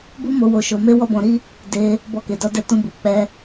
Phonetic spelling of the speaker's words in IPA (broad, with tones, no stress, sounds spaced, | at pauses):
b u˦ m o˧ w o˧ ʃ o˧ m e˦ w ɔ˦ b ɔ̃˧ ɾ i˦ | d e˧ | b ɔ˧ k e˨ d ɔ˧ d ɛ˧ t ũ˧ b u˨ k͡p ɛ˧